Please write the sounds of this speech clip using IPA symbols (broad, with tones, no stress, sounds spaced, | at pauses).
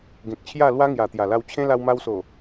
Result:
ɡ ẽ˨ k̚ t͡ɕʰ j a˥˧ l w a˦ ŋ j a˨˩ t̪ j a˨˩ l a˧ w t͡ɕʰ ẽ˦ l a˧ w m a˧ w s o˨˩